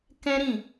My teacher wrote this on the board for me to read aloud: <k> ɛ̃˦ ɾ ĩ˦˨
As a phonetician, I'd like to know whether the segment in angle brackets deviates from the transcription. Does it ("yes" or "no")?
no